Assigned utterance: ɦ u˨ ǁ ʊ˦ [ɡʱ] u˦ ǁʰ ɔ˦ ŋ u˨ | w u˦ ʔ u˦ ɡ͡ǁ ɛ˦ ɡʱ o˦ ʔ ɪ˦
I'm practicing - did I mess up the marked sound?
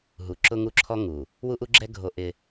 yes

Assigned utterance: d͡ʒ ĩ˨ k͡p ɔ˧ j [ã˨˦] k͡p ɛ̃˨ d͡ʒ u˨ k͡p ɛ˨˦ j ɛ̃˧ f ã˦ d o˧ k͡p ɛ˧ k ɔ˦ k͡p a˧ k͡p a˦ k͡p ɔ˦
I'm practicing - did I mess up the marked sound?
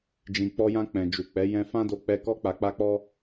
yes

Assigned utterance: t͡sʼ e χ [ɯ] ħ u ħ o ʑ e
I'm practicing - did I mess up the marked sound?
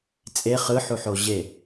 no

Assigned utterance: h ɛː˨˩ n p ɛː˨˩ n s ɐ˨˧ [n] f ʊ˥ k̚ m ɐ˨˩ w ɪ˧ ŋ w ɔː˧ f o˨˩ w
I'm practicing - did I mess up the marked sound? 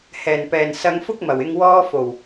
yes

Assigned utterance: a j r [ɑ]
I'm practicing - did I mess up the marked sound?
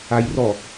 yes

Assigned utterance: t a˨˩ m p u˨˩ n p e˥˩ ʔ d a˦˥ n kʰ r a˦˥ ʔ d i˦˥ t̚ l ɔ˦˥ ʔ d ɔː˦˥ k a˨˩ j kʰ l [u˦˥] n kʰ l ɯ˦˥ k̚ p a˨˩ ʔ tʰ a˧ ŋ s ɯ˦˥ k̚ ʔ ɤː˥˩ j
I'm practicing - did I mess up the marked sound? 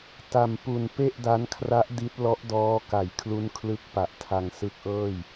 no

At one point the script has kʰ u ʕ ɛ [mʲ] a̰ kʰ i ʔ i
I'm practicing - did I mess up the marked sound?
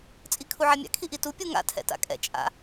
no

